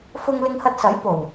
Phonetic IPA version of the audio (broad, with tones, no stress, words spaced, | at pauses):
fʊ˧ŋlɪ˧ŋhɐ˧t̚sɐ˨˥j po˨˩w